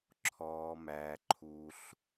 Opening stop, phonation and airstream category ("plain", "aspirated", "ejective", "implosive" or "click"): click